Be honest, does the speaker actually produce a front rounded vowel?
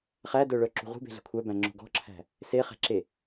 yes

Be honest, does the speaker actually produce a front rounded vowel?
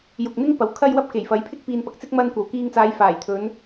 no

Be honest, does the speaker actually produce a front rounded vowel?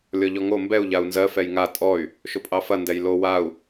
yes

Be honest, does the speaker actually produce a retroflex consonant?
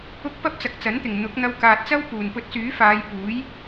no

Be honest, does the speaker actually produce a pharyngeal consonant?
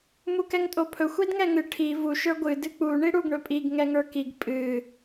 no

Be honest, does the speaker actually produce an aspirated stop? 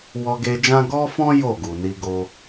no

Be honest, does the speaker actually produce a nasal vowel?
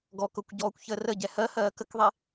no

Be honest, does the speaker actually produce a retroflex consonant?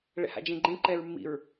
yes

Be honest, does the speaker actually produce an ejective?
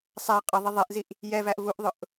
yes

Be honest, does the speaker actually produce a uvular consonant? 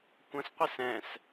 yes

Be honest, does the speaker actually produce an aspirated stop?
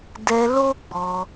no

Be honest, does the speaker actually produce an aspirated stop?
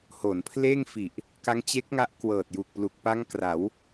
yes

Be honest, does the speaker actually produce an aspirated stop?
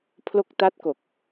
yes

